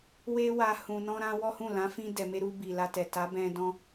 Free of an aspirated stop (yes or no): yes